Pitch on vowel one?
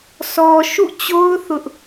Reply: low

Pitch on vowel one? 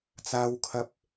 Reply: high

